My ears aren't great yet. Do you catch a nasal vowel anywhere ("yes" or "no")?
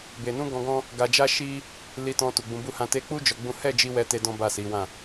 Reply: yes